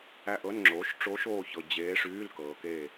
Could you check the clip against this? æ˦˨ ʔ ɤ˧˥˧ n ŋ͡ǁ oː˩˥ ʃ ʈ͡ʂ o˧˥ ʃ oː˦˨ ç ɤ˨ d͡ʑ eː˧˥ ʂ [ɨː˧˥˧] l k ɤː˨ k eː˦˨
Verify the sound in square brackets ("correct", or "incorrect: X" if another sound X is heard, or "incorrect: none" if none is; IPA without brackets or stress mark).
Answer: incorrect: yː˧˥˧